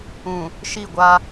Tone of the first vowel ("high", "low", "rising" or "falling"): low